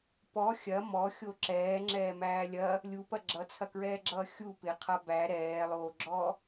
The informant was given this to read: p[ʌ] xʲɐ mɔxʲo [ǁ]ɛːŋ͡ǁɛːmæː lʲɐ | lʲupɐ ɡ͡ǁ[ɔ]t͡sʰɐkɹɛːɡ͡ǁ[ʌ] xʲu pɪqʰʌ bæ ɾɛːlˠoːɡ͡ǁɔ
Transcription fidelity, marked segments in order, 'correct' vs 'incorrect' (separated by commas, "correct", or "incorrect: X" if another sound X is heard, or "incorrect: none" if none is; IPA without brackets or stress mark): incorrect: ɔ, correct, incorrect: ʌ, incorrect: ʌː